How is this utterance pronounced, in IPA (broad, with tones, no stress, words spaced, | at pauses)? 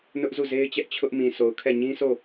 nʊ˦ʔ zu˦˨ze˦ɪ̯t͡ɕɛ˦ʔ t͡ɕʰʊ˦ʔmĩ˨so˨ʊ̯kʰɛ˦˨ ɲĩ˦sʰo˦˨